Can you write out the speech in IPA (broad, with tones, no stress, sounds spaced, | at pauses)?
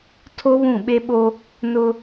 tʰ o˦ β ũ˦˨ ɓ e˦ ɓ o˦ | n ʊ˦